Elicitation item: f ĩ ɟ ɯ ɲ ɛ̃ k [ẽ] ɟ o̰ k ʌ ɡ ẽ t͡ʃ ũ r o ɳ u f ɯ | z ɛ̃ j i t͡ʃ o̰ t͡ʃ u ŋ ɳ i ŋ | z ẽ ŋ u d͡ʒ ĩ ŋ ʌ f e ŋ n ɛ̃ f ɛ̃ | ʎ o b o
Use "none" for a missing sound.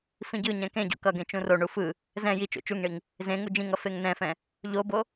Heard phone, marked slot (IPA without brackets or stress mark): ẽ